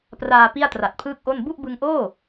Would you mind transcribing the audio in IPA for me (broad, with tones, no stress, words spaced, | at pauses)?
praː˧ pi˥˩a̯tra˨˩t̚pʰɯː˥˩k̚ʔo˥˩n bu˥˩ʔbɯ˧ŋʔoː˥˩